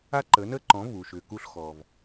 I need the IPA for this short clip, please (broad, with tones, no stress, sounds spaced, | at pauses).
a˥ ǃ ə˩˥ n ə˥ ǃ ɔ̃˩˥ v u˩ ʃ ʏː˩ k u˧ ɬ x ɔ˩ v